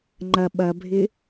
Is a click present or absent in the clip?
present